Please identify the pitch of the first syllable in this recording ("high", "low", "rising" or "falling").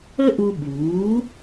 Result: high